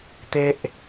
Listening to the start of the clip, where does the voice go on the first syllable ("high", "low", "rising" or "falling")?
high